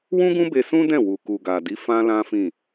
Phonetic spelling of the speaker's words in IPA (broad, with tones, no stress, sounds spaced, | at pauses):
w ũ˦ ɡ ũ˦ b e˧ s ũ˦ d ɛ̃˦˨ w u˨ k u˨ ɡ a˨ d i˨˦ f ã˦ l ã˦ f ĩ˦˨